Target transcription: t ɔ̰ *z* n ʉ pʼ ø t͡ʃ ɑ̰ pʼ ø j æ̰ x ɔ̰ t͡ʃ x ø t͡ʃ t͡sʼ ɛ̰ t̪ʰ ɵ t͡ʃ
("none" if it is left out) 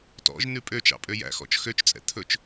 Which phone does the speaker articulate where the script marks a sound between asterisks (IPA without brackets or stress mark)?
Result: ʒ